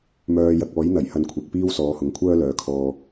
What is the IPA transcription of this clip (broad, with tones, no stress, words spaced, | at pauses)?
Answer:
mœː˧jɐ˧k̚ ɔː˨˥jn̪ɐ˨˩j hɐ˧nkʷʰɪ˨k̚piː˥w sɔː˨˧hʊ˨˥ŋkʷʰœː˥ lœː˨˧kʰɔː˧